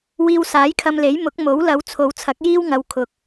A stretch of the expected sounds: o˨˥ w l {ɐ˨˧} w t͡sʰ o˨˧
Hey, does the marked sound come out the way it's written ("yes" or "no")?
yes